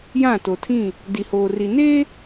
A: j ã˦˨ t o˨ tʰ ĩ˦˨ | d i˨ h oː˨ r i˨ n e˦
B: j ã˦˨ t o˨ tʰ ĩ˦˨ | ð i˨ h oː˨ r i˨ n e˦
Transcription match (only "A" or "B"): A